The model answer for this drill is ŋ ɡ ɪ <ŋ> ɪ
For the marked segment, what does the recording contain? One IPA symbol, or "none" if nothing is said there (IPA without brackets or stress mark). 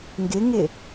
ŋ